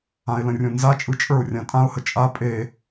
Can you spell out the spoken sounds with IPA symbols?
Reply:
ã ɪ̯ l ə̃ rʲ õ n z a t͡ʃʼ ɯ t͡ʃʼ ə˞ ʊ̯ rʲ ã tʼ ã ʊ̯ h ə t͡ʃʼ a pʼ e

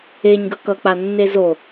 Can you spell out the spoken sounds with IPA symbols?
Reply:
e ɲ ɡ ʌ k ʌ k͡p a nː e z o

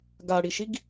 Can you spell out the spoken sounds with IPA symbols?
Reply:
ɡ a ɽ i ʃ i ɡ

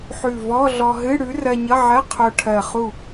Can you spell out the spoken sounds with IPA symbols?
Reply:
ħ ʉ˧˩ v ɔ˧˥˧ ɮ ɔ˧ ɦ ɨ˧˥˧ ɽ ʉ˨˥ r ɜ˧ ɲ ʌ˧˥˧ ʕ ɜ˧˥˧ qʰ o˧ ʈʰ ɜ˧˩ χ u˧˩

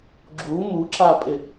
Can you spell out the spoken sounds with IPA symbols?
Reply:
ɡ͡ǁ u m u ǁ a pʼ ɪ

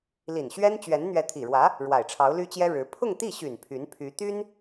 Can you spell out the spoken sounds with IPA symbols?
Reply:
l i˨˩ n ɕ ɥ ɛ˥ n t͡ɕ ɥ ɛ˧˥ n n̪ ɥ ɛ˧˥ t̪ʰ i˨˩ ɻ w ä˧˥ | ɻ w a˨˩ ɪ̯ ʈ͡ʂʰ ɑ˧˥ ʊ̯ l y˥ t͡ɕ j ɛ˥ ɻ ɻ̩˧˥ pʰ ʊ˥˧ ŋ t̪ i˥˩ ɕ y˨˩ n pʰ y˧˥ n pʰ y˧˥ t̪ y˥ n

